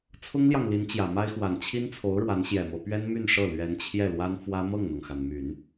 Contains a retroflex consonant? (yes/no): yes